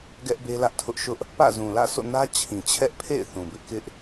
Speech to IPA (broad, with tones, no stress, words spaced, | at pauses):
ɡɛ˦ʔbe˦lä˦ʔtʰʊ˦ʔ ʃʊ˦ʔ | pä̰˦˨zũ˨lä̰˦˨ so̰˦˨nä˦ t͡ɕʰĩ˨t͡ɕʰɛ˦ʔpʰḛ˦˨ɪ̯ θũ˨bɪ˦ʔ kɪ˦ʔ